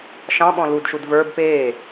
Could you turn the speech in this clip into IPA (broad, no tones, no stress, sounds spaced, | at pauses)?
ʃ ɑ̃ ɓ ɔ̃ l u d ʃ u d v ə˞ b p eː